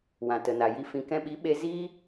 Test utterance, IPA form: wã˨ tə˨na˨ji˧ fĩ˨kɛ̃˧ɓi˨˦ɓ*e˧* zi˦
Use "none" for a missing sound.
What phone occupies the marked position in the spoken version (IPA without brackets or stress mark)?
e˧